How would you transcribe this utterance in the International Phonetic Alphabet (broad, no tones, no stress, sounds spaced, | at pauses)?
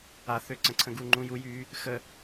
a θ ø ǀ ə̃ ǀʰ ə̃ ɡ u ŋ͡ǃ ũ j u j yː | x ə